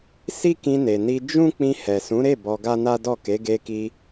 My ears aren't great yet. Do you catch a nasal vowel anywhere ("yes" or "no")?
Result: yes